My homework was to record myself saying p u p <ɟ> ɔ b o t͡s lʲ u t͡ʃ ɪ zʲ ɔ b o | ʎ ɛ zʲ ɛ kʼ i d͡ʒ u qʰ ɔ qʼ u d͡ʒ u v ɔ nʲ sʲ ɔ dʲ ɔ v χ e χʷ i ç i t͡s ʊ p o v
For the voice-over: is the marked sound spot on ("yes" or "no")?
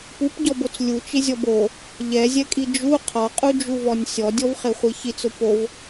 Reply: yes